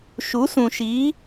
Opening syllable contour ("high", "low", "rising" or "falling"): rising